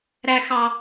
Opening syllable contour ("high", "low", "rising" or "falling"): high